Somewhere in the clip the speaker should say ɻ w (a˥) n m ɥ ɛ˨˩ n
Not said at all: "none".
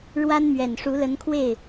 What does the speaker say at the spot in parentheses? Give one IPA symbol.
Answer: a˥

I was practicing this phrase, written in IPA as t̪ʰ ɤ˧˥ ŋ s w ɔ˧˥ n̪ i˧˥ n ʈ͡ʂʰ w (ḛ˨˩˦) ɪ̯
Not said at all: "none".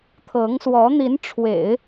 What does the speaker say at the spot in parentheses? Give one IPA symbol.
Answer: ḛ˨˩˦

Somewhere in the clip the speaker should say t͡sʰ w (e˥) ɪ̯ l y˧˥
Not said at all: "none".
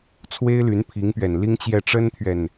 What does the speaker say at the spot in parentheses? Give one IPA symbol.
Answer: e˥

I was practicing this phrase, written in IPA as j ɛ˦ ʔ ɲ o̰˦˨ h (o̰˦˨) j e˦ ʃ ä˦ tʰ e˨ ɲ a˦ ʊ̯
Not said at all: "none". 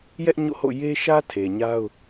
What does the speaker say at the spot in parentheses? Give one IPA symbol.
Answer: o̰˦˨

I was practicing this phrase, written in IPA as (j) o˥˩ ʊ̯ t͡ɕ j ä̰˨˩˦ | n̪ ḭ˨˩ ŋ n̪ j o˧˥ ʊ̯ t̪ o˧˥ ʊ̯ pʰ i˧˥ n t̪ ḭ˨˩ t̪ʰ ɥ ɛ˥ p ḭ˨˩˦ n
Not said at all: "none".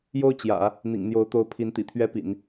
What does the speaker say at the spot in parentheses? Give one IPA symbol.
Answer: j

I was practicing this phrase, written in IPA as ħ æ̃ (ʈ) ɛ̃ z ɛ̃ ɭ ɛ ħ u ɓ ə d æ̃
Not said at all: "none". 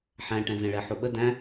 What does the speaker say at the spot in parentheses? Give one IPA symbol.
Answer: ʈ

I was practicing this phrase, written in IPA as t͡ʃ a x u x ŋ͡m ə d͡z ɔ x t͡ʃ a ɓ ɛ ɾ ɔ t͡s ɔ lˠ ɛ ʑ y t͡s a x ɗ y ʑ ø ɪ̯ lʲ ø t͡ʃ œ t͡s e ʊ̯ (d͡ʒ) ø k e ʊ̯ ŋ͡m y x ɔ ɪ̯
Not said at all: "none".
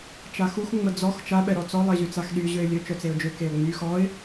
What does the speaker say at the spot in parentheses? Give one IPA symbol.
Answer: d͡ʒ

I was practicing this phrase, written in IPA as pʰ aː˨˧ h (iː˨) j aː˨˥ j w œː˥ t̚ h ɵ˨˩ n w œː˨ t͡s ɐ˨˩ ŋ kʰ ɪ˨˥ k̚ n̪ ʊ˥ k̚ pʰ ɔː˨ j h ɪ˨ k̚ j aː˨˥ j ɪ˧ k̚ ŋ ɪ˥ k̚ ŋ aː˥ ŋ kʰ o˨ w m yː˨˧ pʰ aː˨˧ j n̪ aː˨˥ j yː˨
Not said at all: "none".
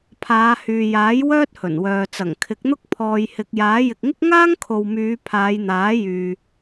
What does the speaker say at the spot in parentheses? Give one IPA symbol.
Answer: yː˨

